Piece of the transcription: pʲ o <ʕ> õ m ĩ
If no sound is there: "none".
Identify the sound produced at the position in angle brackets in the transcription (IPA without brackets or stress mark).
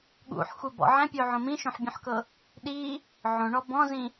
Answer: ʕ